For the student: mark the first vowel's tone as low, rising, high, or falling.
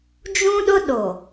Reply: high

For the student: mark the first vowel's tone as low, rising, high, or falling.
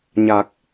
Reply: low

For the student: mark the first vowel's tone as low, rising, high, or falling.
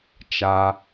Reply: high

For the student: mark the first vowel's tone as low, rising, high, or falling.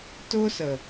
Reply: high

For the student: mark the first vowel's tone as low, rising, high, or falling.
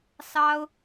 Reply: high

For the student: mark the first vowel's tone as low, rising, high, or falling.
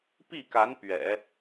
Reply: falling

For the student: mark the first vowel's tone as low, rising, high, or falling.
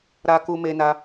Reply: high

